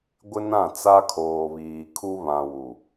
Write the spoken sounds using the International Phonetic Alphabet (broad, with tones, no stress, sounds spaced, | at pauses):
ɡʷ ɪ˦ n ã˦˨ t͡s a˦ kʰ oː˨ β iː˨ kʰ u˦ β ã˨ w u˨